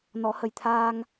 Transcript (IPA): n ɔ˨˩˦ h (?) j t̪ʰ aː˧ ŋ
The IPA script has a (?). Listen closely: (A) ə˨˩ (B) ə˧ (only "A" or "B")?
A